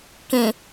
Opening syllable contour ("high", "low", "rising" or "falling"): low